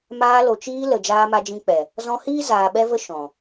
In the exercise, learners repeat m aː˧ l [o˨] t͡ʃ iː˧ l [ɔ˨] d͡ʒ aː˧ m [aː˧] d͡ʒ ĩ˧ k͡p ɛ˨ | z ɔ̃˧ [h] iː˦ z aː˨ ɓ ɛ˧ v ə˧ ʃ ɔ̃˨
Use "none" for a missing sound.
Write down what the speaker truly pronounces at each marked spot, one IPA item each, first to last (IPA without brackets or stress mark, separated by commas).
o˨, ə˨, a˧, h